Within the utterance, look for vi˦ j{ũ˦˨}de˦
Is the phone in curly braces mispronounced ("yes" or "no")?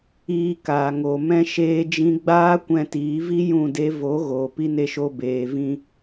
no